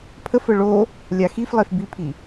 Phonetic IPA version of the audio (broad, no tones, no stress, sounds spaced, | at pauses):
pʰ ə f ə ɭ o | lʲ a x i f lˠ e f b i pʰ i